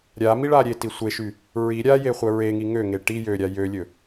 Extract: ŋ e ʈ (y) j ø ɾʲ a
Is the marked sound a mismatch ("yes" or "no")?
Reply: yes